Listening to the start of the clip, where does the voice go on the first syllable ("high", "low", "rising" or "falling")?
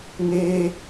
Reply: high